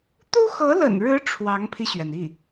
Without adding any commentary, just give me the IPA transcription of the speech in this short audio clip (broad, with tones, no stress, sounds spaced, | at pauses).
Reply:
t̪ u˥ x ɤ˧˥ l ə̰˨˩ n ɻ ɻ̩˧˥ ʈ͡ʂʰ w ɑ˧˥ ŋ pʰ i˧ ɕ ɥ ɛ˩ n i˥˩